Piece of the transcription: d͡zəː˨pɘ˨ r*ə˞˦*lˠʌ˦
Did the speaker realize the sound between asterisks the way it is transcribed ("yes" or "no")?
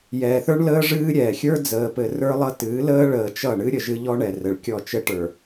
yes